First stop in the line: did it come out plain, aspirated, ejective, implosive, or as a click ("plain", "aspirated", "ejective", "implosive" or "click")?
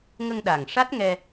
implosive